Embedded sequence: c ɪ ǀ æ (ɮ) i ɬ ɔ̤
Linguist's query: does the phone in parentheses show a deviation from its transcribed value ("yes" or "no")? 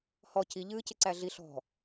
no